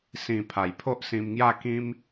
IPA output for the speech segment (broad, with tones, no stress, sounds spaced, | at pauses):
s ĩ˨˩ pʰ a˨˩ j pʰ o˦ ʔ s ĩ˧ m ŋ j a˥˧ k ĩ˦ m